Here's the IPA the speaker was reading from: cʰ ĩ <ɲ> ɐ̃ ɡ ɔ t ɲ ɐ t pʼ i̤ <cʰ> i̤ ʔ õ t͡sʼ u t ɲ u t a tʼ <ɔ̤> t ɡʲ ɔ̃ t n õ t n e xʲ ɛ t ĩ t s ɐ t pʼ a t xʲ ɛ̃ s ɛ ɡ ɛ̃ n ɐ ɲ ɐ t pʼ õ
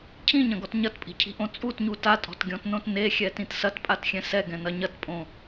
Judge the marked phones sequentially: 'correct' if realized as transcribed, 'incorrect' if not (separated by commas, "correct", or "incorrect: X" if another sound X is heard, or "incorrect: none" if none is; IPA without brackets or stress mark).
correct, correct, correct